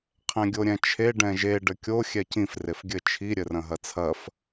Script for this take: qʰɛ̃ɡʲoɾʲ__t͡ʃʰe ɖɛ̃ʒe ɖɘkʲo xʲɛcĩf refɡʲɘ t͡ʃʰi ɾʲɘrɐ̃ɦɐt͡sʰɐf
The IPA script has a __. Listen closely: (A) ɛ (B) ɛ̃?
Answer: B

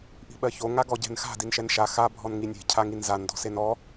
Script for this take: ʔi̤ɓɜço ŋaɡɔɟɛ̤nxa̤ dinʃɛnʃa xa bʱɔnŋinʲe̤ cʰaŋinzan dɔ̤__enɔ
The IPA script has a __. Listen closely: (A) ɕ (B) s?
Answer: B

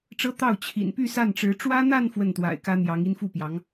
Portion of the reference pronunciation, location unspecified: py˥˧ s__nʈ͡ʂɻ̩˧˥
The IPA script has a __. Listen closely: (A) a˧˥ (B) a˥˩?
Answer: B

